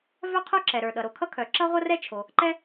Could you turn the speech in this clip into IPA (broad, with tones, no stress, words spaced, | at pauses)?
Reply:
vœ˥qʰo˥ ǁɛ˩ɾə˞˩ ɗʌ˩ɾo˩kʰʌ˥ kʰœ˩ǁʌ˥ʁʷʌ˥rɛ˥ t͡ʃʰo˩ | ǃɛ˥